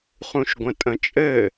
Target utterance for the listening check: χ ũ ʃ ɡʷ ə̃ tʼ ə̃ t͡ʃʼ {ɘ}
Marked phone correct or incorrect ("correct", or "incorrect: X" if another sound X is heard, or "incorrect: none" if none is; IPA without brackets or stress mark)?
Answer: correct